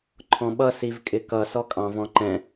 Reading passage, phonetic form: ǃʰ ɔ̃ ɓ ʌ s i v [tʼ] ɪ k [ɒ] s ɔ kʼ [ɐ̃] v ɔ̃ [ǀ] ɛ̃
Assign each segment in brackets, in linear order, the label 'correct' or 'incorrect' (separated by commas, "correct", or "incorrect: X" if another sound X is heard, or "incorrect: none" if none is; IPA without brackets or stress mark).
incorrect: kʼ, incorrect: ʌ, incorrect: ɑ̃, incorrect: ǃ